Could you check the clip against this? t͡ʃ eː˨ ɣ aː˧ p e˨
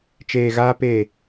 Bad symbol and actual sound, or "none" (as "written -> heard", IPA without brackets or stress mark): none